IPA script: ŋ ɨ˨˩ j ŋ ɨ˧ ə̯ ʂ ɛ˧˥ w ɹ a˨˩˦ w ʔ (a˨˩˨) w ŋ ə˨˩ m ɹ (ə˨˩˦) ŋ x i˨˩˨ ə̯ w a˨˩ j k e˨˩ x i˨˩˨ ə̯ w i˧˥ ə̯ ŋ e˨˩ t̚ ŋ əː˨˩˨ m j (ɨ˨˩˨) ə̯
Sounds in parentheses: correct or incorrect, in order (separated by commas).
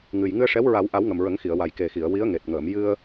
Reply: incorrect, correct, incorrect